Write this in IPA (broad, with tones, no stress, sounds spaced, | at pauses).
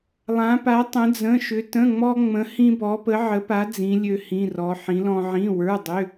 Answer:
lˠ ã˧˥ p a˧˥ tˤ ə̃˧˥ d͡z ə̃˧˥˧ ʃ ʏ˧˥ t ə̃˧˥˧ ŋ͡m ɔ˥ ŋ͡m ə̃˧˥ h ĩ˥ b ɔ˧˥ p ə˧˥ ʕ ə˧˥ p a˧˥ d͡z ĩ˧˥ lʲ ø˥ h ĩ˧˥˧ r ɔ˧˥ ħ ĩ˧˥ l ɔ̃˥ ʕ ĩ˧˥˧ w ə˞˧˥˧ dˤ ʏ˧˥˧